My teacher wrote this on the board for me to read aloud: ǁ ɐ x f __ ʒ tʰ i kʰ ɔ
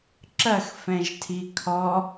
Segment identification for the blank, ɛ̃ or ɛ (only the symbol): ɛ̃